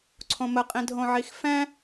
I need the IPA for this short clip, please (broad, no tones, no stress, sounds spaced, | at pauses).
ǀʰ õ m ə qʼ ĩ dʱ õ ʕ i x f ɛ̃